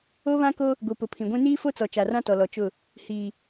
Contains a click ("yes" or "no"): no